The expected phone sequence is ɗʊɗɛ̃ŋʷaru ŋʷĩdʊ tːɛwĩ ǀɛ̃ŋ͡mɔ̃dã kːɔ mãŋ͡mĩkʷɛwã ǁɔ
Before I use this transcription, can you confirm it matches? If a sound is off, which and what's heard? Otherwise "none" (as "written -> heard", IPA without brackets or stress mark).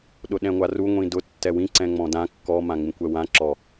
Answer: none